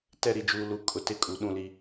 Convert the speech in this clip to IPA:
t ɛ˦˨ ɾ i˨ d͡ʒ uː˨ l u˨ kʼ ʊ˨ t ɪ˦ kʼ u˨ ɗ ũ˦˨ l i˦

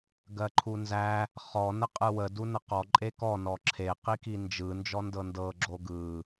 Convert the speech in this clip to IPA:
ɡ ɜ ǃʰ u n z æ | χ ɔ n ə qʼ ɯ w ə d u n ə q ɔ ǃʼ e k ɔ n ɔ ǁʰ e q i k i n d͡ʒ ɯ n d͡ʒ ɔ n d ɤ n d ɤ ɡ͡ǁ o ɡ ɯ

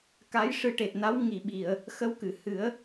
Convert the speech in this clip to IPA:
k a˧˥ j ʂ ɨ˧˥ ʈ e˨˩ t̚ n a˧˥ w ŋ i˨˩˨ ɓ i˨˩˨ ə̯ | x ə˧˥ w k ɨ˨˩˨ h ɨ˨˩˦ ə̯

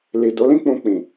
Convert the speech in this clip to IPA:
l i˨ d o˨˦ l ĩ˦ k͡p ũ˧ k͡p ĩ˨

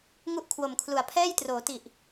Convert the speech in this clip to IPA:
ŋ u˥˩ ʔ kʰ w o˨˩ m kʰ l u˨˩ a̯ pʰ ɛː˥˩ j t r oː˩˦ t i˨˩ ʔ

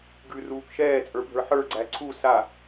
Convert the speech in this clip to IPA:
ɡ ʉ r uː k ʃ ɛː t͡sʼ ə˞ bʱ ə˞ ħ ə˞ ɡ͡ǀ æ ǀʰ u s a

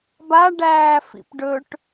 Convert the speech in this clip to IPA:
b a ɖ æː f ḭ p ɖ ɵ ʈ

